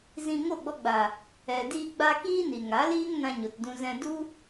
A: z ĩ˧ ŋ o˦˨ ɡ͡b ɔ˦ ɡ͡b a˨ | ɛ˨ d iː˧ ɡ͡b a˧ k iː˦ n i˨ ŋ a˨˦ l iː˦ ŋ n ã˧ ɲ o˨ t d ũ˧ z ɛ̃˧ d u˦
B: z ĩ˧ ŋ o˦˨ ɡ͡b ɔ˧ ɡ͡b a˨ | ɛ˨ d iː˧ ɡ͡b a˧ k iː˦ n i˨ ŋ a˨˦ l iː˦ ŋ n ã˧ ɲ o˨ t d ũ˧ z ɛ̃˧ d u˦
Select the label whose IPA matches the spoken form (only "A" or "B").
B